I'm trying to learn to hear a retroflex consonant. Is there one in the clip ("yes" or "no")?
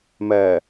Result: no